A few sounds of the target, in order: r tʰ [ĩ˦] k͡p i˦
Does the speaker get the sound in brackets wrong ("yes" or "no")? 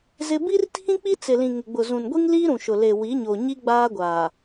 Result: no